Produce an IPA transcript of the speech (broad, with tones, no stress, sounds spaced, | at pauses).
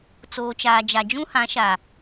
t͡s oː˨ t͡ʃ aː˨ d͡ʒ a˨ d͡ʒ ũ˦ h ã˨˦ ʃ a˨